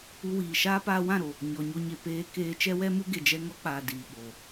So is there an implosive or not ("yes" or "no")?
yes